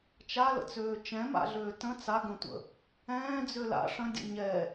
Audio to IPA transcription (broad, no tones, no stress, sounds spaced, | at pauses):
t͡ʃ a l ə̰ t͡s øː t͡ʃ ɛ̃ m a̰ ɮ øː t ə̃ t͡s a ɡ ə̃ tʷ ə̰ | ɛ̃ː d͡z ø l a̰ ʂ ə̃ dʲ ə̰ ɲ ɛ